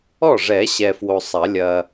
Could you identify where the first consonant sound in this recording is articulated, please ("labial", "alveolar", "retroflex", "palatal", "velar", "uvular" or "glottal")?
retroflex